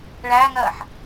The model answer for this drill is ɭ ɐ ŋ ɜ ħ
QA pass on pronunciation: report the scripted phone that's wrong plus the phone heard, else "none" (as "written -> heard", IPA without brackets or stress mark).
ɐ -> æ